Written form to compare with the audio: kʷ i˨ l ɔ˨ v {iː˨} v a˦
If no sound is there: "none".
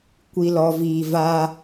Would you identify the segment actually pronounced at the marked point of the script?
iː˨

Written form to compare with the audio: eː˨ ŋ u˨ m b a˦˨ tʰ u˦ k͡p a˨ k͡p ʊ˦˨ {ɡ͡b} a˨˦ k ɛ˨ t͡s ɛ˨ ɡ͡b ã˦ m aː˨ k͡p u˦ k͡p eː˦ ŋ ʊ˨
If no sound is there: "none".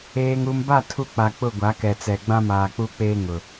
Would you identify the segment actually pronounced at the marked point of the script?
ɡʷ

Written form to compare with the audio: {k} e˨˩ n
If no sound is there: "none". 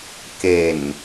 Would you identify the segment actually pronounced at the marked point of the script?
k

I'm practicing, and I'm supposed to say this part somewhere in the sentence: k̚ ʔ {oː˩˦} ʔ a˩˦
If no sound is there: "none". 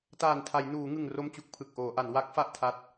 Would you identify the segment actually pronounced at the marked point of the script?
oː˩˦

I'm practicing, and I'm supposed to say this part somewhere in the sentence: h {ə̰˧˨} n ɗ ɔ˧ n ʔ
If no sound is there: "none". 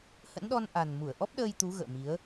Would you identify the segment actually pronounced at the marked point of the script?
ə̰˧˥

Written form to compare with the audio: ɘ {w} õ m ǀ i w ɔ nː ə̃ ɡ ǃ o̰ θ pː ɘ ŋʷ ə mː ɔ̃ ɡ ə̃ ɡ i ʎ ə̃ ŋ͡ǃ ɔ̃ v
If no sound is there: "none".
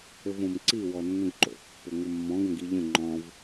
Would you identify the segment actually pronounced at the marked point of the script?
v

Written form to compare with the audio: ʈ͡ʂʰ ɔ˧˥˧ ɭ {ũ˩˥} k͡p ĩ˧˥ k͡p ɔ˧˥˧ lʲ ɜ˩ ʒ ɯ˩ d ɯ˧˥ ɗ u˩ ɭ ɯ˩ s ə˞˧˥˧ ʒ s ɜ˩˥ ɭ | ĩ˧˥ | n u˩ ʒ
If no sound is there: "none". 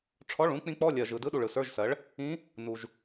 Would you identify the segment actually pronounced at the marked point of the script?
ũ˩˥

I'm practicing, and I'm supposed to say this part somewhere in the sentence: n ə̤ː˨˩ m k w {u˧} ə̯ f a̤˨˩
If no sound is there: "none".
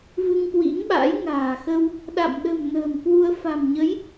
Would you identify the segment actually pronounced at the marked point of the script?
u˧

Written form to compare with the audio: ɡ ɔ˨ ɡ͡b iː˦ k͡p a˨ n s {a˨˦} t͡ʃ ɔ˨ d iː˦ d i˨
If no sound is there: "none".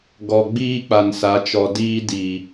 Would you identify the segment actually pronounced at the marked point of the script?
a˨˦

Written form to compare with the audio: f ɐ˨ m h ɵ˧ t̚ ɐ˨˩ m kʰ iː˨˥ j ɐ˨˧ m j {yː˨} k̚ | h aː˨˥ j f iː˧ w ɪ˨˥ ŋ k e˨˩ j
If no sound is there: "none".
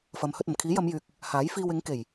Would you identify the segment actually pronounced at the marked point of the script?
yː˨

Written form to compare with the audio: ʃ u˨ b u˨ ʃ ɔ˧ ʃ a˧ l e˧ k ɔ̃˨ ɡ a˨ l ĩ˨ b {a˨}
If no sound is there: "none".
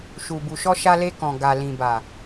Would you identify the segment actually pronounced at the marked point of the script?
a˨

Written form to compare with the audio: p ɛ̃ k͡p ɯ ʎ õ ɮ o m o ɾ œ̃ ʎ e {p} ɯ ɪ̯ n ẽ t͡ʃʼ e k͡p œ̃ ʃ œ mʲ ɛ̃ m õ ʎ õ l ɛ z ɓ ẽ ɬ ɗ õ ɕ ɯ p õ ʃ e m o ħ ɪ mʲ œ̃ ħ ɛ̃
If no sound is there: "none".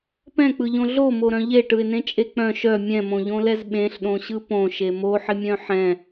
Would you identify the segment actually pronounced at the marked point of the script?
ʈ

